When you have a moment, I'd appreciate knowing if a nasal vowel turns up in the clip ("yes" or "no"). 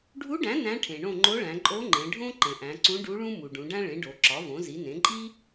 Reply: yes